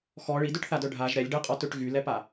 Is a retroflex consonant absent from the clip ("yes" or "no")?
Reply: no